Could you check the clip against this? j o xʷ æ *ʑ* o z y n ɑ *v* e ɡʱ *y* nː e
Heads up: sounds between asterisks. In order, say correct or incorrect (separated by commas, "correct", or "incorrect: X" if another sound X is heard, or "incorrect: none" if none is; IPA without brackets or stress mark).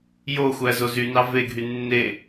incorrect: z, correct, correct